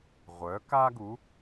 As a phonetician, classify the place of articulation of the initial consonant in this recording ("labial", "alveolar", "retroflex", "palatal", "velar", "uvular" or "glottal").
uvular